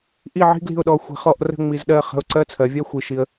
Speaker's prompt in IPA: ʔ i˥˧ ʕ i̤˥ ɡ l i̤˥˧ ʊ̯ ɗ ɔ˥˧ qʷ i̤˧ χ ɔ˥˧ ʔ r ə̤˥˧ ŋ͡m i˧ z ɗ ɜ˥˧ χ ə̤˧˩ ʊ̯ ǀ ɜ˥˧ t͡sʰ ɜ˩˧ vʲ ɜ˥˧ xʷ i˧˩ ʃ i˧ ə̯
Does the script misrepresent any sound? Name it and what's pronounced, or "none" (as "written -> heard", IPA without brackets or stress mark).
qʷ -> xʷ